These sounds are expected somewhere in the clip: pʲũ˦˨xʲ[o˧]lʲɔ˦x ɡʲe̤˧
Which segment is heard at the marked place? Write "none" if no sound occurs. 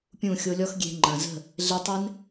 o˧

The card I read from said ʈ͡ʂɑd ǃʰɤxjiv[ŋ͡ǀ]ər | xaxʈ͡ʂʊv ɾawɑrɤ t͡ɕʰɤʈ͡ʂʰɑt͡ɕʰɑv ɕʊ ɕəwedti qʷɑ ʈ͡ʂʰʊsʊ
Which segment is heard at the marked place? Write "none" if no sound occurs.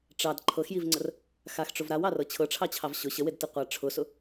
ŋ͡ǀ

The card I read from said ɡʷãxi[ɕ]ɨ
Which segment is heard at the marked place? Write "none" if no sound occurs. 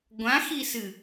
s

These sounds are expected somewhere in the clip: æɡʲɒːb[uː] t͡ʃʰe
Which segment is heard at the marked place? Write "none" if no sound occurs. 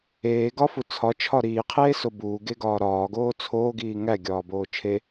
oː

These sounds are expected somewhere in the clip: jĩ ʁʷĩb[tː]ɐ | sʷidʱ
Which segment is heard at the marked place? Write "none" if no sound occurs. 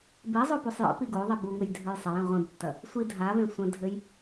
tː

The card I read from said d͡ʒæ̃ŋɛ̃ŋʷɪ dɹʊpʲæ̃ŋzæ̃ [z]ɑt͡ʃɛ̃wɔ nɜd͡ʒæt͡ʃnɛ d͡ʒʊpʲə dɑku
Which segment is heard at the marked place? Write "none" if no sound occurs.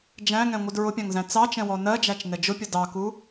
t͡s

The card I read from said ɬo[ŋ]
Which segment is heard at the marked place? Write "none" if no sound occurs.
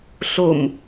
m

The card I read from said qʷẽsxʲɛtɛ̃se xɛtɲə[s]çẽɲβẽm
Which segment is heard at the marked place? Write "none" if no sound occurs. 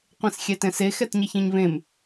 none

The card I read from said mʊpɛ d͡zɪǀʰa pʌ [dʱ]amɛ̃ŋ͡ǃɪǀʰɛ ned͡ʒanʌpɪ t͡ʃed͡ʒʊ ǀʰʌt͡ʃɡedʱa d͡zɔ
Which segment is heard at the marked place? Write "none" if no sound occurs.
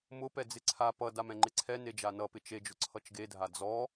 d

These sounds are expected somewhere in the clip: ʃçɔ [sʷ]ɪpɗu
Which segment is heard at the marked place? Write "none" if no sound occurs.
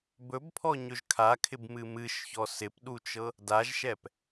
s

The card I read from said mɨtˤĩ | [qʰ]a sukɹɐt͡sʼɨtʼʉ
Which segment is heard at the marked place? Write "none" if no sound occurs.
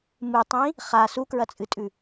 χ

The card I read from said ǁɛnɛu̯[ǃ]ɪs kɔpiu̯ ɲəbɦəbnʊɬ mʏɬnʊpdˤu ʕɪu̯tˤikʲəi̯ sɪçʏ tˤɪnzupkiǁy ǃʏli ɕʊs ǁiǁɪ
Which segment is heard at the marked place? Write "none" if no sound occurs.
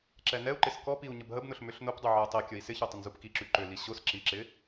ǃ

